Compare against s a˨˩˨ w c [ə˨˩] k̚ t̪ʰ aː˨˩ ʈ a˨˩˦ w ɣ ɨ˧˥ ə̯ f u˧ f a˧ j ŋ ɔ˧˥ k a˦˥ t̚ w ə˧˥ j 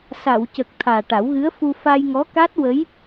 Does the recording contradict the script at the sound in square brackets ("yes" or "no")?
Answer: no